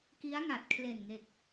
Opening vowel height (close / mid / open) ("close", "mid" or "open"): close